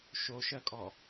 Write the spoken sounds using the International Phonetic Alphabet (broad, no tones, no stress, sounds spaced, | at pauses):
ʃ o ʃ ɜ kʼ ɔ